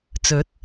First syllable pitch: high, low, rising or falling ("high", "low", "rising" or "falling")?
rising